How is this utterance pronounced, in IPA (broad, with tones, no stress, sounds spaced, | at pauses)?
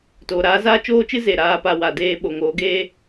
t oː˨ ɾ aː˨˦ z aː˦ t͡ʃ oː˦ t͡ʃ ɨ˦ z e˨ ɾ aː˧ p a˧ w a˨ d eː˧ ɓ o˨ ŋ oː˨˦ ɡ eː˦